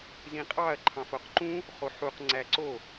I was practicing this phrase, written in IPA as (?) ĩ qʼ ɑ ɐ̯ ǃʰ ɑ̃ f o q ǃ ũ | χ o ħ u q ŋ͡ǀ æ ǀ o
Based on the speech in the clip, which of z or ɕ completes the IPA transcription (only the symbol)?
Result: z